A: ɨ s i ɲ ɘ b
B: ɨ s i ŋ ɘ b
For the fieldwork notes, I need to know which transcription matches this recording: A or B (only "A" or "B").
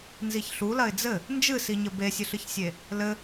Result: A